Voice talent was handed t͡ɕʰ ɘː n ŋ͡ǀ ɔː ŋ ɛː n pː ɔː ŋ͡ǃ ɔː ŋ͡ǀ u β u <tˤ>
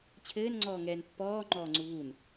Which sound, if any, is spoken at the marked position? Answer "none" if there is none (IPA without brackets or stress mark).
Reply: n